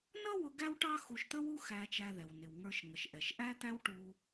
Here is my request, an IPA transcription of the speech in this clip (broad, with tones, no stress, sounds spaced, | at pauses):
n ʌ˥ w ʊ˧ ɡ æ˥ w ʈ ɑ˥ x u˧ ʃ t̪ ə˥ w u˥ x æ˧ t͡ʃ æ˧ ð ɛ˩ w n ɪ˩ w ŋ ə˞˧ ʃ ŋ ə˩ ʃ ʔ ɛ˩ ʃ ʔ æ˥ t̪ æ˥ w ʈ u˧